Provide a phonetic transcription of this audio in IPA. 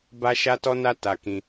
b a˦ ʃ a˦ t ɔ˦ n a˦ t a˧ k ĩ˧

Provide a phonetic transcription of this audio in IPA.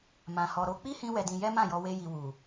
m ã˨ h ɔ˨ ɾ o˧ k͡p i˦ h ĩ˧ w ɛ˧ d ĩ˧ j ɛ˦ m ã˦˨ j ɔ˧ w e˦ j i˧ w u˨

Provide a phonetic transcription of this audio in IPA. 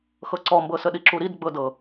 x ɤ ǀ ɔ m b ɤ s ə ɗ i ǁ u ɾ i d ɡ͡b ɤ d ɤ

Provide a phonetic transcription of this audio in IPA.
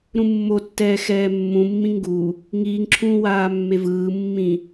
ɾ ũ mː o tː ɛː x ɛː mː ũ mː ĩ ŋ ɡ u | ŋ iː ŋ ǁʰ ũː w aː mː e v ɯː mː ĩ

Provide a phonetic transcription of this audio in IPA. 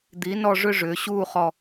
d̪ i˩˧ n ɔ˧˩ ʐ ʏ˥ ʐ ʏː˩˧ ɕ uː˥˧ χ ɔ˧˩

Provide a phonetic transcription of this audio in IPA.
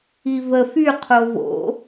i v ə f y qʰ o v o̰

